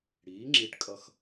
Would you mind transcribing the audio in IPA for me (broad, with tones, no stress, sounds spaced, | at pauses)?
ɽ iː˩˧ ŋ͡ǁ i˧˩ ʈ kʼ ʌ˧˩ x